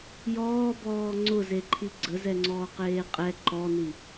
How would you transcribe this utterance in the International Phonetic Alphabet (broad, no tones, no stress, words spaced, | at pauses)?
jɔːbɔː ŋ͡ǀʊzeǃʰi ɡ͡ǀəzɛŋ͡ǀɔːqeː qʼɛ ǃɔni